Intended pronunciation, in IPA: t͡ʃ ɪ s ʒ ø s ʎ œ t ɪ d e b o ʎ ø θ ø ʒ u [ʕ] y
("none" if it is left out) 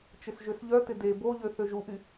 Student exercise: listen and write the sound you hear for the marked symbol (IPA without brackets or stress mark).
ʔ